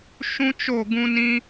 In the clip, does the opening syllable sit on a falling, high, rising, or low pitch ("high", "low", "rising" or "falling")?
high